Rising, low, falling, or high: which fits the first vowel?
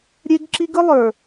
high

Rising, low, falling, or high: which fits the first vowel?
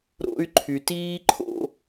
high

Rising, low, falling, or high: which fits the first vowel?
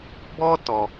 high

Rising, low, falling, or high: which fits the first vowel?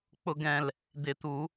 high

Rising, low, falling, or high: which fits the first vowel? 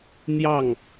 falling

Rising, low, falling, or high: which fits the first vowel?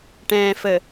low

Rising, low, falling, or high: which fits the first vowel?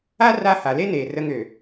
high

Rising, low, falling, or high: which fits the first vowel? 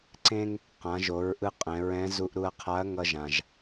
high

